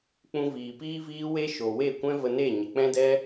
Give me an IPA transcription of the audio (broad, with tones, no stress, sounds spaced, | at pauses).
k͡p ũ˧ v iː˨ p iː˦ v iː˦ w e˦ ʃ o˨ w e˦˨ kʷ ɛ̃˦ v ə˧ n e˦˨ ɲ ə˨ k͡p ɛ̃˦ d ɛ˦